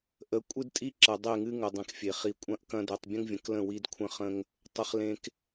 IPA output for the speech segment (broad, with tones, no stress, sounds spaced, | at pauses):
ʔ ə˨˦ kʷʼ ɨ˦ d tʼ i˦ ǁ ɐ˨ dˤ e˦˨ ŋ ɨ˦ ŋ ə˨ dˤ ẽ˨ k fʲ e˨ χ i˨ kʷʼ ɐ̃˦˨ ʔ k ɐ̃˦ d e˨ tˤ bʲ ə̃˦ ŋ vʲ ə̃˨ k l ə̃˦˨ w i˦ d kʷʰ ə̃˦ χ ə̃˦ ŋ | tˤ ə˨ χ l ẽ˨ k